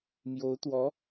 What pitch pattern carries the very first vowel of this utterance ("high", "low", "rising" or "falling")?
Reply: rising